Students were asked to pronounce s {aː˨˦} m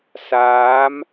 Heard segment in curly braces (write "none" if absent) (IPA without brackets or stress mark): aː˨˦